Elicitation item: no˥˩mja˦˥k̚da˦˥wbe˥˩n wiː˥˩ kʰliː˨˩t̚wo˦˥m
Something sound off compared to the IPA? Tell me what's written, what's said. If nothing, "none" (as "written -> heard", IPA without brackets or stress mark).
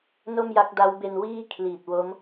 e˥˩ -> e˧